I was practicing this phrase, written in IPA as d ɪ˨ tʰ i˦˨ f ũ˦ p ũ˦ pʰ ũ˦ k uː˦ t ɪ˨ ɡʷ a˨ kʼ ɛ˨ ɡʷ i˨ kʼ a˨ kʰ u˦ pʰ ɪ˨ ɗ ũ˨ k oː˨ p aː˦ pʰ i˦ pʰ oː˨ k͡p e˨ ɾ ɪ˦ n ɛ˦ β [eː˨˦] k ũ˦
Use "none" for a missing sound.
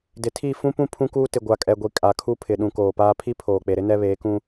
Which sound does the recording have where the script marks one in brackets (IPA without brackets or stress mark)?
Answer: eː˨˦